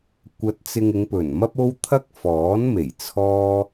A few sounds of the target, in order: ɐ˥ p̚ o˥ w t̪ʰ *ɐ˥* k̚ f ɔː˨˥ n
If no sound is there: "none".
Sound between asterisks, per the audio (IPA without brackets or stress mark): ɐ˥